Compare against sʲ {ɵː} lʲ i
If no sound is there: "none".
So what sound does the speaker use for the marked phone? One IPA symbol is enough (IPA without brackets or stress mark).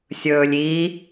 ɵː